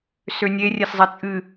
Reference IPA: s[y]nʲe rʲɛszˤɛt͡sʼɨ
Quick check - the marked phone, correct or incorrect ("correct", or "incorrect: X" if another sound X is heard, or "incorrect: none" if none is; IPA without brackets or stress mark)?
incorrect: ø